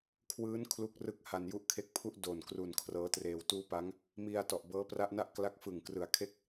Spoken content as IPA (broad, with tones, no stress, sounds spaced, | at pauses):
kʰ w ɯː˦˥ n kʰ l u˦˥ k̚ r ɯ˦˥ k̚ h a˧ n j u˦˥ ʔ kʰ e˦˥ k̚ pʰ u˥˩ ʔ d o˨˩ n k r u˨˩ n kʰ r ɤː˦˥ t r eː˧ w t uː˦˥ p a˦˥ ŋ | m i˧ a̯ t ɔ˨˩ ʔ b ɤː˦˥ p r a˦˥ ʔ n a˥˩ ʔ k l a˦˥ k̚ f ɯ˨˩ ŋ k r ɯ˨˩ a̯ kʰ e˥˩ k̚